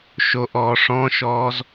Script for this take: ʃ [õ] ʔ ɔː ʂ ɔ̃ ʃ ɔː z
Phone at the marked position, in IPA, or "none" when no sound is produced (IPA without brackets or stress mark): o